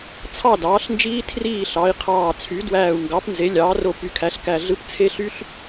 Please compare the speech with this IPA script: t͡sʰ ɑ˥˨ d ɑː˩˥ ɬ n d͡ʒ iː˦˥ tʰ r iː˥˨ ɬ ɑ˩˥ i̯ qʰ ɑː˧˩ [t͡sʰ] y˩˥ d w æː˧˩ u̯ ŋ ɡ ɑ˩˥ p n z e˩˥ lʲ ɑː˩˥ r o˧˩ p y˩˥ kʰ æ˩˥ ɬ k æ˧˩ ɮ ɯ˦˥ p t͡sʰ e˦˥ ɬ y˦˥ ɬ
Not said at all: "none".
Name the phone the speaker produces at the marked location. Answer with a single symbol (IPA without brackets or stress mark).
t͡sʰ